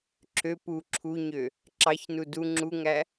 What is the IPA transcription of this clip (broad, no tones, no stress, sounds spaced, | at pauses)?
ǁʰ ø p u ǁʰ u ɲ ø | ǁ ɑ ç n u d u ŋ͡ǁ u ŋ æ